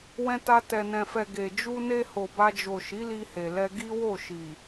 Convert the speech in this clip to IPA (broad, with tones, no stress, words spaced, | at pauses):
wɛ̃˧ ta˧ tɛ˨nɛ̃˨fɛ˨ ɡe˨ d͡ʒu˧ne˧ ho˨ba˧d͡ʒo˨ ʃi˨˦li˧he˨lɛ˧ ɡi˦wo˦˨ʃi˨